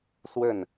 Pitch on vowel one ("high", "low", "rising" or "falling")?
falling